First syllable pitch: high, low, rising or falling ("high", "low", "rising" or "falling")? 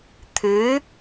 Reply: rising